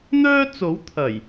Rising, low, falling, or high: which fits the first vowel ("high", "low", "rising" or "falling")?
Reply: high